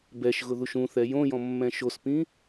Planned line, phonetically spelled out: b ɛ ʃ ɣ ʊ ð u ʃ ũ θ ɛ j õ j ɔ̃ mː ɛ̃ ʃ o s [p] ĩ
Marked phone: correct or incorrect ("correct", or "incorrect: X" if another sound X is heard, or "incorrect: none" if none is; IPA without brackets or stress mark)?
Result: correct